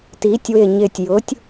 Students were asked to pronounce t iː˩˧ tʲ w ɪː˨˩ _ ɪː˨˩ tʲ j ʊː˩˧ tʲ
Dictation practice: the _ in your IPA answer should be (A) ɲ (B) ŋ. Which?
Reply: A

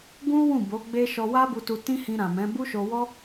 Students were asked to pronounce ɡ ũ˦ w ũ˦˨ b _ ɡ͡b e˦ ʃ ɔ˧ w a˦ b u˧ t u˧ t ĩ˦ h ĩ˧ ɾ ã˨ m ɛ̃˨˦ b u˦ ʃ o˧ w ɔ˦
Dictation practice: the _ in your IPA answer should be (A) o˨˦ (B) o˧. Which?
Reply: A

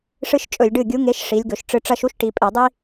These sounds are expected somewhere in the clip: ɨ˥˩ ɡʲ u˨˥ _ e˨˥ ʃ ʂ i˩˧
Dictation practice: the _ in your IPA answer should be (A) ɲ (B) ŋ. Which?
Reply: B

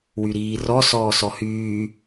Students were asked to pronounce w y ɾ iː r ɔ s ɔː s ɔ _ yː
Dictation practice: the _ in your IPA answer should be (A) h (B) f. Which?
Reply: A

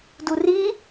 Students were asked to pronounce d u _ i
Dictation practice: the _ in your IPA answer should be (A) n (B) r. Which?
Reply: B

